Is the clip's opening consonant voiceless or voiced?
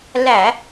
voiced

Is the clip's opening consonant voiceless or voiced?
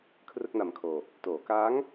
voiceless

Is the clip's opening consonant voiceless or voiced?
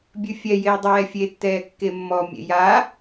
voiced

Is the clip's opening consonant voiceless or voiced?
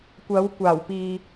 voiceless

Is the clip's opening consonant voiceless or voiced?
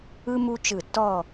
voiced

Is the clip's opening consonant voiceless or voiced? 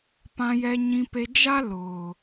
voiceless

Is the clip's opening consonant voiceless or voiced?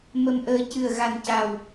voiced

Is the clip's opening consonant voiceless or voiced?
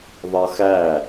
voiced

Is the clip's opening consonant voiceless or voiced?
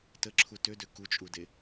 voiceless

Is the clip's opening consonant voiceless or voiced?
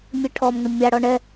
voiced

